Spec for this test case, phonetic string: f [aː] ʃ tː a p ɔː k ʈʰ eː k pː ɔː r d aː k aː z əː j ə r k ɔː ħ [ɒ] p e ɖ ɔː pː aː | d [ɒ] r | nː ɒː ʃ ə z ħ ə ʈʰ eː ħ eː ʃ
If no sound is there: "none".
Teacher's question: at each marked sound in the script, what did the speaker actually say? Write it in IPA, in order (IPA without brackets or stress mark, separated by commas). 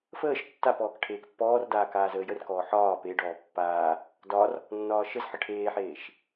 əː, ɒː, ɒ